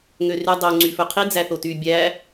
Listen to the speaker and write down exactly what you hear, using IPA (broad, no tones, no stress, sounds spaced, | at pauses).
ŋ ø r y dˤ o ŋ͡ǀ y f ɵ qʰ i d͡z æ θ o t y bʲ æ